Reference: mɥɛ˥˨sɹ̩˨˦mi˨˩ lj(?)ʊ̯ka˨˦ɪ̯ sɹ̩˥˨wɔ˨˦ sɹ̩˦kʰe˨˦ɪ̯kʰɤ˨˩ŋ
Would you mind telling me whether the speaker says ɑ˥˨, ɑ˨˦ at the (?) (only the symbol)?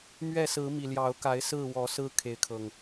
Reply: ɑ˨˦